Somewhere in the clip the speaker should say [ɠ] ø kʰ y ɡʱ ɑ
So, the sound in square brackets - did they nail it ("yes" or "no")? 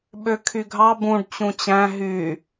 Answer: no